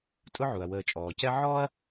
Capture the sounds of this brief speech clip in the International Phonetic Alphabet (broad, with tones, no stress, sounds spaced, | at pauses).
tʼ ʊ˥ ʕ u˩ ɐ̯ w əː˨ t͡ʃʼ ɔː˩ c ɛ˥ ʕ ɔː˥ ɐ̯